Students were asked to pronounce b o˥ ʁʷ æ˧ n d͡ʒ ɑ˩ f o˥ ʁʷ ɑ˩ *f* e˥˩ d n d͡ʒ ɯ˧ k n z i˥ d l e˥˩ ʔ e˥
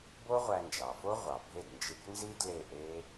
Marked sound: incorrect: bʱ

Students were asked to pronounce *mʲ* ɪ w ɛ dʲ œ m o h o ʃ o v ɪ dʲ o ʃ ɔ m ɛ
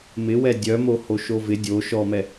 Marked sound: incorrect: m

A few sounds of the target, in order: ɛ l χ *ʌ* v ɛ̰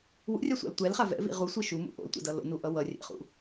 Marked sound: incorrect: a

